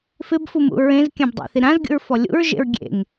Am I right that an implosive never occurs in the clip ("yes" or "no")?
yes